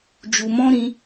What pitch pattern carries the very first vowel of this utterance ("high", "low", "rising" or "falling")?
low